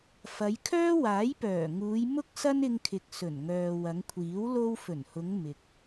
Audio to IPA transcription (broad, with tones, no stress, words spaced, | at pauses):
fɐ˨˧jkʰœː˥ waː˨˥jpœː˨˩ŋuː˨˧j mʊ˥k̚sɐ˥nɪ˧ŋkʰɪ˨k̚ sɵ˨˩nŋœː˨ wɐ˨˧ŋkʷʰiː˨˥w lo˧w fɵ˨˩nhʊ˨˧ŋ mɪ˨k̚